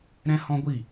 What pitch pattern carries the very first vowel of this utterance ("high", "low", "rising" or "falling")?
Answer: high